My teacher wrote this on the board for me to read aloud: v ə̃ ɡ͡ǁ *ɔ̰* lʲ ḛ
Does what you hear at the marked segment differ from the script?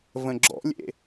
no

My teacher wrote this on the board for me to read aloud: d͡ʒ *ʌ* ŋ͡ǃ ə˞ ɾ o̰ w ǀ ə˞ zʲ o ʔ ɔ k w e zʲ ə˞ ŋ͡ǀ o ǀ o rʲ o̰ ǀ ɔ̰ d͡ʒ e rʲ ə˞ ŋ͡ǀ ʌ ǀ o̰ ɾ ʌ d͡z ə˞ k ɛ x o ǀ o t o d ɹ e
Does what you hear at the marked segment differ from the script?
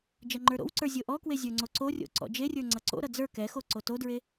no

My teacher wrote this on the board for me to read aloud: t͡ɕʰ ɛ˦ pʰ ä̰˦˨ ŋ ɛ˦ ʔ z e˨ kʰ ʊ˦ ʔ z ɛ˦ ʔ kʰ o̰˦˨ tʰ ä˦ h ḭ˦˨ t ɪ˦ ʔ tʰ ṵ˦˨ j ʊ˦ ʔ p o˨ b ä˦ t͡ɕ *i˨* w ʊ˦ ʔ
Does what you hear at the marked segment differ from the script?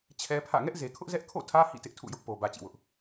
yes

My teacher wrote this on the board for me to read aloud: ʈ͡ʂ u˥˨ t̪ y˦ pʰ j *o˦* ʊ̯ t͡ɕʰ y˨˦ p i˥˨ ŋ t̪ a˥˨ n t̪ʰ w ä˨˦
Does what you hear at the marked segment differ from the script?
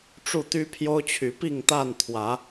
no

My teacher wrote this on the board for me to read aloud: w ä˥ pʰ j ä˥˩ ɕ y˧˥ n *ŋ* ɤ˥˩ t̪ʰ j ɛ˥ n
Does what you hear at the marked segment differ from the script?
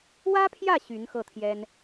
yes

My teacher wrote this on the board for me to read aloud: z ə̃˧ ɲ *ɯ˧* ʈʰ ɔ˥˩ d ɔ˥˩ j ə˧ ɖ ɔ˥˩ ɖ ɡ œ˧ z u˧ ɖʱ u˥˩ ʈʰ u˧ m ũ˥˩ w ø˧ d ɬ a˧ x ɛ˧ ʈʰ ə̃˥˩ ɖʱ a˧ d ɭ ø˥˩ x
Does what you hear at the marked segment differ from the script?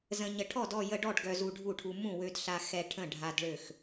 yes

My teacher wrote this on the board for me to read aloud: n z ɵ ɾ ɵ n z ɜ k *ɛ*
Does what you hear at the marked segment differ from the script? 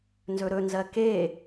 yes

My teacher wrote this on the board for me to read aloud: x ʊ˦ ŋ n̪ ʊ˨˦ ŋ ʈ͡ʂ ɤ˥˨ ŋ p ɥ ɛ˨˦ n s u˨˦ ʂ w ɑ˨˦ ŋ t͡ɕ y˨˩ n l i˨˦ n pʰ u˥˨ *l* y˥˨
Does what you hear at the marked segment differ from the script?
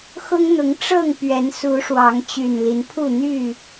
yes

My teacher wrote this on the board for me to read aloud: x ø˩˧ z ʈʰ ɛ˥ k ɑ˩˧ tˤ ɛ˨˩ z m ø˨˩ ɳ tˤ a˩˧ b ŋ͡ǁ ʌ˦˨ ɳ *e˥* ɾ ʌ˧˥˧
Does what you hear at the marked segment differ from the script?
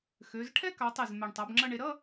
yes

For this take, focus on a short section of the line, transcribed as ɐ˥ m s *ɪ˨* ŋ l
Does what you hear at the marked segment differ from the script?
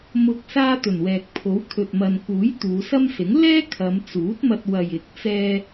yes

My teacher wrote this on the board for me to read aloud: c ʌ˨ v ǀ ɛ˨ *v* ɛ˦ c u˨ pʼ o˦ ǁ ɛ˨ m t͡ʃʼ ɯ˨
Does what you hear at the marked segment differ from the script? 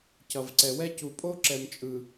yes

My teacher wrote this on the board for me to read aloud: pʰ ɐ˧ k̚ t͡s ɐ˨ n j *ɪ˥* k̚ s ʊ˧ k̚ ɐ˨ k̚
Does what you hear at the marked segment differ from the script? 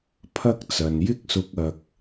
no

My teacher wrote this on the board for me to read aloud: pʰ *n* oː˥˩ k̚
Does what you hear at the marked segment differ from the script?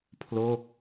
yes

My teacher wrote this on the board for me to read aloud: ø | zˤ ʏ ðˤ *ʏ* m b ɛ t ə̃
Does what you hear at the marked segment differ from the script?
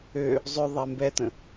yes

